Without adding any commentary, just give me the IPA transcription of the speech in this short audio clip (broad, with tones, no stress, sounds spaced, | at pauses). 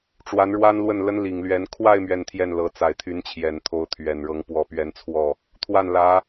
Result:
ʈ͡ʂ w a˧˥ n ɻ w a˥ n l w ə˥˩ n l ə˥ n l i˨˩ ŋ l ɥ ɛ˧˥ n kʰ w a˥˧ ɪ̯ m ɥ ɛ˥˧ n t̪ʰ j ɛ˥˩ n l ɤ˧˥ t͡s a˨˩ ɪ̯ t̪ʰ y˧˥ n t͡ɕʰ j ɛ˨˩ n t̪ʰ o˧˥ ʊ̯ t̪ʰ ɥ ɛ˨˩ n ɻ ɤ˧˥ ŋ p w ɔ˨˩ p ɥ ɛ˧˥ n t͡sʰ w ɔ˥˩ | t̪ʰ w a˥˩ n l ä˧˥